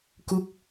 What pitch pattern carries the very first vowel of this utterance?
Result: falling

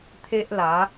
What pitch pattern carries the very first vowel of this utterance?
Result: high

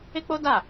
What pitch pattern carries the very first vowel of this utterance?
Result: high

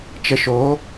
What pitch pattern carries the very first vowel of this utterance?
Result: low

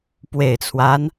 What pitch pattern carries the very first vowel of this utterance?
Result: low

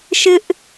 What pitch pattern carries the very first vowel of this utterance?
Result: high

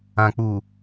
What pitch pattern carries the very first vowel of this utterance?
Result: low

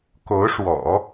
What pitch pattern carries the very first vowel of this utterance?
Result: rising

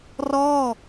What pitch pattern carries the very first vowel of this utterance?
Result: falling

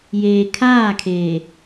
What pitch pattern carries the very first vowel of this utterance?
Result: low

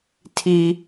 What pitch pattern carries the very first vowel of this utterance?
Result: high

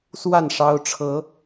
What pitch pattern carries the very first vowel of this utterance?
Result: falling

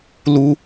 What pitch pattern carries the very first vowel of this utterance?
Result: high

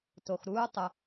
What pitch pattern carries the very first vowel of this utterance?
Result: low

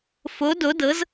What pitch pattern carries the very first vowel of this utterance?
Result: rising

